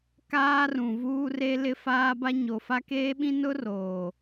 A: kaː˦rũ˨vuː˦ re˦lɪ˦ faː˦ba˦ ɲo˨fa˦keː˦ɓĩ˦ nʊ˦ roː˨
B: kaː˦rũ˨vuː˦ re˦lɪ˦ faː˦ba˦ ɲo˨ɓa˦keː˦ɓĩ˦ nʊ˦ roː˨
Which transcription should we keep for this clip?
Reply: A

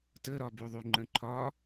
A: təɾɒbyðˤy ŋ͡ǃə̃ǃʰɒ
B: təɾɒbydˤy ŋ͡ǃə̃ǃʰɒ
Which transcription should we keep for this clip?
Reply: A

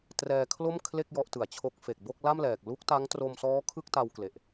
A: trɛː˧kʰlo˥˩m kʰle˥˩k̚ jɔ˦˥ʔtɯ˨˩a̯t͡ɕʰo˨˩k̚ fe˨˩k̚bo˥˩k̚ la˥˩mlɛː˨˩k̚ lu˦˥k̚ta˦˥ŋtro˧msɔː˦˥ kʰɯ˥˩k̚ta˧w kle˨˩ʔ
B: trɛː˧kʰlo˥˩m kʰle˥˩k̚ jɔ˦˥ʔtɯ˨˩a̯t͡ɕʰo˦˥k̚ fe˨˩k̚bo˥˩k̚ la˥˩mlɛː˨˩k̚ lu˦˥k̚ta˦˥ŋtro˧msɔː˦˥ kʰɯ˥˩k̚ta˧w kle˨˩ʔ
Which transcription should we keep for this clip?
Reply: B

